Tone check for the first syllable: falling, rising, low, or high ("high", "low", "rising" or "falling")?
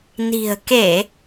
low